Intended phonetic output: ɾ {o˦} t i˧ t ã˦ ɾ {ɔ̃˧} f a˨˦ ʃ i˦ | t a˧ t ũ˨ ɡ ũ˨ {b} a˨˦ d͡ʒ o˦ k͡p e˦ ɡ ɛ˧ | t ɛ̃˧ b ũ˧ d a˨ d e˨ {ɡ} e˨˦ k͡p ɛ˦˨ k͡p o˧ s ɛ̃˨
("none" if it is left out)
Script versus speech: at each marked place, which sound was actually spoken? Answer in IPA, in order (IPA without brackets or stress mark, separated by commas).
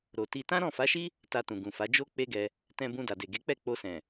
o˨, ɔ̃˦˨, f, ɡ